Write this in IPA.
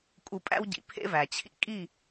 kʼ u˧ pʼ æ̰˦ w ɟ ḭ˨ pʰ ḛ˦ v æ˨ t͡ɕʰ ḭ˧ kʼ i˦˨

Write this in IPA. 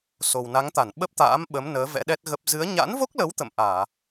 s o˨˩ w n a˨˦ ŋ t̪ a˧˩ n ɓ ə˦˥ p̚ t̪ a̰ː˧˥ m ɓ ə˨˦ m n əː˨˦ v ɛ̰˧˥ ɗ ɛ˦˥ t̚ ɣ ə˦˥ p̚ z ɨ˨˦ ə̯ ɲ a̰˧˥ n v o˦˥ k̚ l ə˨˦ w t̪ ə̰˧˨ m ʔ aː˧˩˨

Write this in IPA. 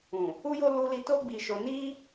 ũ˨ | u˦ j o˦ l u˧ l i˧ t o˦ ɡ͡b i˧ ʃ o˧ n i˦

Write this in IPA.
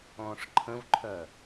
ɔ̃ː ʂ ǃʰ ə̃ v ǃʰ œ

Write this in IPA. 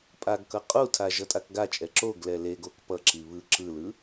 pʼ a ɡ k ʌ qʼ u tʰ a ʒ ʌ tʼ a k ɡ a t͡ʃʼ ɛ ǁ o ɡ l ɛ l e ɡ o k p ʌ ǁ i β ɯ ǁ ɯ l ɯ

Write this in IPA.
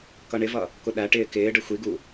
k ʌ ɳ ɪ v ʌ | k ʊ ɗ æ ʈ ɪː k ɪː ɖ ə xʷ i ɡ u

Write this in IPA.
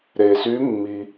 ɾ e˩ s y˨˦ mː i˩

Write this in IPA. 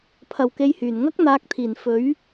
pʰ ɐ˨ w k e˧ j h yː˨˩ n ŋ ɐ˥ k̚ n̪ aː˨˥ k̚ t̪ʰ iː˨˩ n f ɵ˨˥ ɥ

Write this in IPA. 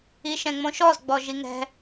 i ʃ ɛ̃ ŋ͡m õ ʃ ɔ z ɡ͡b ɔ ʒ i ŋ ɛ̤

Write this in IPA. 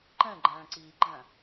ǃ ɛ̃ ɡ͡ǃ æ̃ː ǀ iː ɡ͡ǃ æ̃

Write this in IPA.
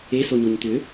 e s o ɲ o ɲ t̪ ʏ

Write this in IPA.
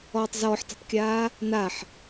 ɔː tˤ z ɔː ħ t e̤ tˤ kʲ aː | n a ħ

